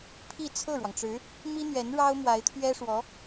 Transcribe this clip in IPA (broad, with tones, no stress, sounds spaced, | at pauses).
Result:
pʰ i˥˧ t͡sʰ ɤ˥˩ ɻ w ɑ˩ ŋ ʈ͡ʂ ɻ̩˧˥ | m i˥ n̪ ɥ ɛ˧˥ n ɻ ɑ˥ ʊ̯ m w a˧˥ ɪ̯ t̪ʰ ɥ ɛ˥ ʂ w ɔ˧˥